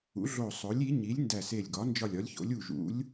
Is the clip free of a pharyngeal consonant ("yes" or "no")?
yes